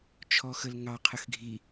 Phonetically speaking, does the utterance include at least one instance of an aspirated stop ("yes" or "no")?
yes